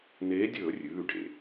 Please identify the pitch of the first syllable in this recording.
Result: rising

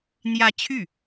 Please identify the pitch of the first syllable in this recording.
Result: rising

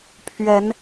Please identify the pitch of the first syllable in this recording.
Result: rising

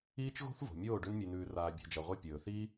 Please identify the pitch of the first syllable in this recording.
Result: high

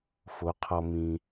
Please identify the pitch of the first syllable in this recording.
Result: rising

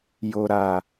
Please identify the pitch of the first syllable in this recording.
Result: low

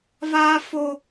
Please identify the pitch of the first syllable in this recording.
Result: high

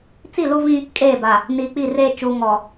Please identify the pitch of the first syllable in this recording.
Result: falling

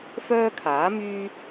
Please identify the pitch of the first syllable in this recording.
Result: high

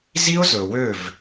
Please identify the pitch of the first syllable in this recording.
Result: high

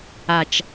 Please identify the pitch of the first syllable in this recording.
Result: low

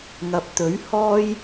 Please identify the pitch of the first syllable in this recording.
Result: low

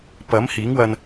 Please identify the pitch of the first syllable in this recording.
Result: rising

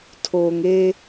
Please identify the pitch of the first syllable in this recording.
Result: low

